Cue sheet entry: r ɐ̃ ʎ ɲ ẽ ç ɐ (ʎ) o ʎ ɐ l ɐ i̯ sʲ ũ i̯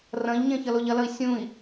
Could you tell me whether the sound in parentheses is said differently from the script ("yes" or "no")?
yes